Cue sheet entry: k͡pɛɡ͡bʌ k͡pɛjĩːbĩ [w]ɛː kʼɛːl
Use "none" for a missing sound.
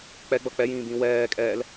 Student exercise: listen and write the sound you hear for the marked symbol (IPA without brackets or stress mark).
w